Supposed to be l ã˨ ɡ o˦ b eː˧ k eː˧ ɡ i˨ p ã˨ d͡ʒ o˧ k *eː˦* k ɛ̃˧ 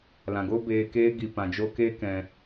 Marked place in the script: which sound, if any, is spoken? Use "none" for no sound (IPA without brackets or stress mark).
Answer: eː˦